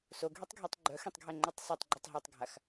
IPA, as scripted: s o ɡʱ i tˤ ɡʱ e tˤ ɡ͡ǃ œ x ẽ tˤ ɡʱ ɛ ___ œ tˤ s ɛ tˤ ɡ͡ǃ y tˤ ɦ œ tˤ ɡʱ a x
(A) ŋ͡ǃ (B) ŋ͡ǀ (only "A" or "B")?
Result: A